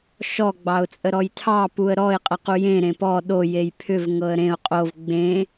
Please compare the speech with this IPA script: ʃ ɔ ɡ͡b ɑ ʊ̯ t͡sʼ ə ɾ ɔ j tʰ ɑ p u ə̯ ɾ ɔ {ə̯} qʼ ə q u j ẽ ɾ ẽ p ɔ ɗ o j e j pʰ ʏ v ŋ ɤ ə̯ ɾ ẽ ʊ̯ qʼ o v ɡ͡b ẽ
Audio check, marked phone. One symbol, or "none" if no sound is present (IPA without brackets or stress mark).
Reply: ɪ̯